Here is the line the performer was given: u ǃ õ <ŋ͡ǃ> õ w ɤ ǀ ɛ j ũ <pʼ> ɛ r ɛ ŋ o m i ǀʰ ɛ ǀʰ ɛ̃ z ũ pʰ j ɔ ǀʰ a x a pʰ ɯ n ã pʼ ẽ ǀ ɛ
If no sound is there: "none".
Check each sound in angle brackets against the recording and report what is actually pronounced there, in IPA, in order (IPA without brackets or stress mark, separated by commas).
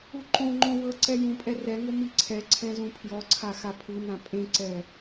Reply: ŋ͡ǃ, pʼ